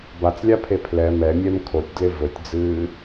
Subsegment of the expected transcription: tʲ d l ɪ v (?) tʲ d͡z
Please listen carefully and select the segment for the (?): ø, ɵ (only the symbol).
ɵ